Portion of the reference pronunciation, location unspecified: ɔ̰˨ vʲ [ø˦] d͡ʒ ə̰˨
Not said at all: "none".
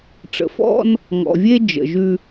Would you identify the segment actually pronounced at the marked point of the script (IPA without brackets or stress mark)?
e˦